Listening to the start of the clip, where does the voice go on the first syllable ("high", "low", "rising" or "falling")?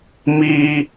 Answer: low